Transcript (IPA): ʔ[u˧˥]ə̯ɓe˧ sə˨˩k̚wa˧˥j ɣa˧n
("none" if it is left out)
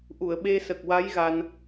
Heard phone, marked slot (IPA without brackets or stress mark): u˨˩˨